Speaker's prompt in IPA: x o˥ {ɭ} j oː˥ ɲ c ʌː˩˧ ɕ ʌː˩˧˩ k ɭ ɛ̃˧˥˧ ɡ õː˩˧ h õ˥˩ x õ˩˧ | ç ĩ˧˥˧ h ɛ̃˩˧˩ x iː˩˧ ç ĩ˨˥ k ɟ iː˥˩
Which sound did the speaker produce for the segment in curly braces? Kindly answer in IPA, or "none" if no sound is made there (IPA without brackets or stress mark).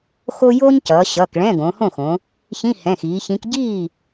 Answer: none